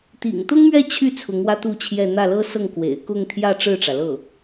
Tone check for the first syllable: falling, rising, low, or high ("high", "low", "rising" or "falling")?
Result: low